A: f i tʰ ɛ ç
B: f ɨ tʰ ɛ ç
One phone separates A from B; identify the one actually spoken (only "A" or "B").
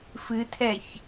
B